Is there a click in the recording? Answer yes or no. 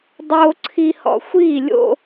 yes